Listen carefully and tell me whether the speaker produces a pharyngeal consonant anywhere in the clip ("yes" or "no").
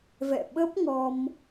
no